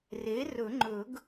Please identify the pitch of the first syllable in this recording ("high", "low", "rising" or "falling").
rising